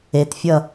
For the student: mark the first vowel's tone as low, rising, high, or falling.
low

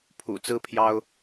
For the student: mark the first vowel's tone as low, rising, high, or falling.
low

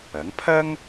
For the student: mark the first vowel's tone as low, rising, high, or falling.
rising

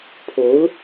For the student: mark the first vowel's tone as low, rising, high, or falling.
rising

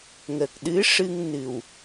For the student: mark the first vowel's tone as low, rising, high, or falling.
low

